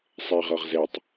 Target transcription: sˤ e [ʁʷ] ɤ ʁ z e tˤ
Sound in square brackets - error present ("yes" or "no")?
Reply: yes